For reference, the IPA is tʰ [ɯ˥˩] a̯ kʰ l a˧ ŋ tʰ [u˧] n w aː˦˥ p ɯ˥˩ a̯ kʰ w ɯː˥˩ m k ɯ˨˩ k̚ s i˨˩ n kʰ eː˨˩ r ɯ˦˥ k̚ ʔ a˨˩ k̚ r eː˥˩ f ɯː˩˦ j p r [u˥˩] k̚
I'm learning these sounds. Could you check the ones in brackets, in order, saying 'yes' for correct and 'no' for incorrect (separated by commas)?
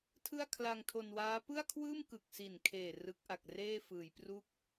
yes, no, yes